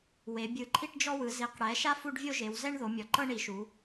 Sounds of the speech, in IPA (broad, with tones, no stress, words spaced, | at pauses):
we˨˦ bʲɯ˨˦ ǃʰi˥ʈd͡ʒɔ˥wɯ˨˦ zi˨˦qɽɛ˨˦ʃa˥ fu˥ɖvʲo˥ʒe˨˦w zɛ˥ɳ ðo˨˦mʲɔ˨˦ ǃɤ˥ɳi˨˦ʃu˨˦